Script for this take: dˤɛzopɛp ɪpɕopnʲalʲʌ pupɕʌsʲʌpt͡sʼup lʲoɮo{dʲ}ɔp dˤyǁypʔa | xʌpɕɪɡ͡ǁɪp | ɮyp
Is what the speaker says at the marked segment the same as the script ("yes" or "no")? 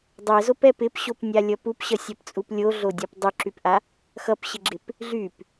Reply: yes